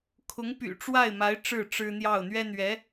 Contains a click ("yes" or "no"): no